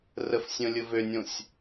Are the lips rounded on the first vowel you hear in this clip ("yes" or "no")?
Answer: no